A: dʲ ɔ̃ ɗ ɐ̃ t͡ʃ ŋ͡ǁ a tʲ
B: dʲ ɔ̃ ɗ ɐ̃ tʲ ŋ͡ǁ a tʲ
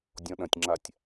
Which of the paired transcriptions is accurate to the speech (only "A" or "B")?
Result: B